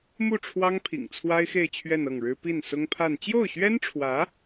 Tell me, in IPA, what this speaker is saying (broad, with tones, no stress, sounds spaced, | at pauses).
m u˥˩ ʈ͡ʂʰ w ɑ˥ ŋ pʰ ḭ˨˩ ŋ t͡sʰ w a˥ ɪ̯ x e˥˧ ɪ̯ t͡ɕʰ ɥ ɛ˥˧ n ɤ˥˩ ŋ ɻ ɻ̩˥ p i˥˩ n s ʊ˥ ŋ pʰ a˥˧ n t͡ɕ j o˥˩ ʊ̯ ɕ ɥ ɛ˥ n ʈ͡ʂʰ w ä˧˥